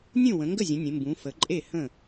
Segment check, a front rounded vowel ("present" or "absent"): absent